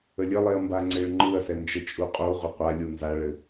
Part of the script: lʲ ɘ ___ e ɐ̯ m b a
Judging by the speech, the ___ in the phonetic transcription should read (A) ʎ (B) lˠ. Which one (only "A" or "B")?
B